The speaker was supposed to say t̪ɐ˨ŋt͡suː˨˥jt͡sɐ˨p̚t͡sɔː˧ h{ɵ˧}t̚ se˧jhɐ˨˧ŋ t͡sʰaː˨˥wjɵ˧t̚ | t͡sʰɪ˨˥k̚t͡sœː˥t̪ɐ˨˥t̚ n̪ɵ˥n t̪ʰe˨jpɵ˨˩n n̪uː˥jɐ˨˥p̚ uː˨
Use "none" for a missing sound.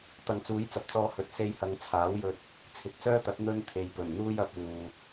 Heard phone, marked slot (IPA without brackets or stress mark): ɵ˨